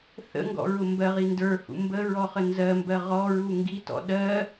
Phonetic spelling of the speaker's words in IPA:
θ ə̰ ŋ ɡ ɔ̰ ɹ ʊ m b ɜ ʁ i n d ə˞ h ṵ m b ə ɹ ɔ χ ə n z ɜ m b ɜ ʁ ɔ ɹ u ŋ ɡ i t ɔ̰ ɗ ɜ

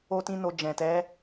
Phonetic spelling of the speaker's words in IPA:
o˦ t ĩ˦ n o˧ d͡ʒ ɛ̃˨ t ɛ˨˦

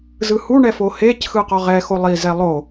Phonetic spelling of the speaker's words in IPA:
z ɯ h u ɳ ɛ f o h e c x ɯ q ɔ ʁ ɛ x o lˠ i z ɛ lˠ o

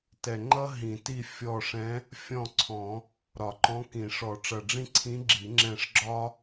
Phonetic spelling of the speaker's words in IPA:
t ɛ˨˩ ŋ͡ǃ ʌ˥ ɦ ĩ˨˩˦ t i˦˨ fʲ ɔ˦˨ ʂ ɛ̃˧˥ | fʲ ɔ̃˦˨ ǀʰ ɔ̃˨˩˦ | ɾ ɒ˨˩˦ ǃ ɔ̃˧˥ k ĩ˨˩˦ ʂ ɔ˨˩˦ ʈ͡ʂ ʌ˨˩ ɖ͡ʐ ĩ˥ ǀʰ ĩ˧˥ ɡ͡ǁ i˨˩˦ ŋ͡ǁ ɛ̃˦˨ ʂ ɡ͡ǁ ɒ˥

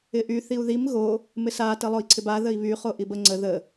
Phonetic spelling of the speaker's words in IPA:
ɪ ʔ y θ i u̯ ð i m ɣ o | m ɪ s a t ə lˠ o i̯ ǀʰ ɪ b a ð ə i̯ β y χ o ʔ i b ə ŋ͡ǀ ə ð ə

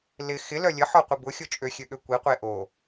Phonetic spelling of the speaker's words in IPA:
l ɪ x ɪ l œ lʲ ə ħ ɔ qʷ i b ʊ xʲ ʊ t͡ʃʼ ø xʲ ø ɠ ø kʷ i qʷ e ʔ o

